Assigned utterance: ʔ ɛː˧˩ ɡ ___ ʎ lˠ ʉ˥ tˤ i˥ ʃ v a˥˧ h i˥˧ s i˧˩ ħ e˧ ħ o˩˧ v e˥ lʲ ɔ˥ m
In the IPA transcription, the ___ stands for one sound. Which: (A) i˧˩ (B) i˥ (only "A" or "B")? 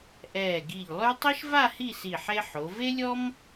A